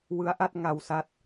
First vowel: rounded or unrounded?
unrounded